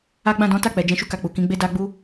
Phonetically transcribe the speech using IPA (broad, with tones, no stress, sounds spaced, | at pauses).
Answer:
a˦ ɡ͡b ã˦˨ d ɔ̃˨˦ t a˦˨ k͡p ɛ˨ d͡ʒ ɛ̃˧ ʃ u˦ k a˧ k͡p u˨ k ĩ˨˦ ɡ͡b e˦ d a˦ ɡ͡b u˦